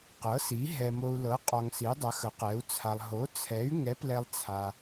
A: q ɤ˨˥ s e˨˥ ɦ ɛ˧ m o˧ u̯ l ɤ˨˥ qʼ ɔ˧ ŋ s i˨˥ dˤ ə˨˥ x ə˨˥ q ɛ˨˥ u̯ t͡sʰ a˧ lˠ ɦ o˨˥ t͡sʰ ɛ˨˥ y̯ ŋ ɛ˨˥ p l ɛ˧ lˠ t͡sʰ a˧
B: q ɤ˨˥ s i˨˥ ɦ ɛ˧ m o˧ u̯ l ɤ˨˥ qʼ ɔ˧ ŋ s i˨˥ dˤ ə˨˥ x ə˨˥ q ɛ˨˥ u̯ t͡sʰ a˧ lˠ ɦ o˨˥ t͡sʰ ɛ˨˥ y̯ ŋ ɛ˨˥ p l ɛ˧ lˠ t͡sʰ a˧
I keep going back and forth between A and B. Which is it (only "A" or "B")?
B